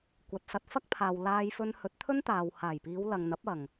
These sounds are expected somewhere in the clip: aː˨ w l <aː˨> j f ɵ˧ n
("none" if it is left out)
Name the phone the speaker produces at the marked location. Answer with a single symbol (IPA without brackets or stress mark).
aː˧